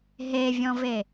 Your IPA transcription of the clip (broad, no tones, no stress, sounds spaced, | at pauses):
ɦ e vʲ ɔ̃ v e